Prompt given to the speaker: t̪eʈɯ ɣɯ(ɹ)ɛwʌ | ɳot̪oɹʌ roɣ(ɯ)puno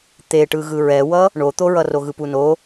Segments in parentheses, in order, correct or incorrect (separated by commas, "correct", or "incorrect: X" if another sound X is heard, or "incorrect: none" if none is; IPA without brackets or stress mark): correct, correct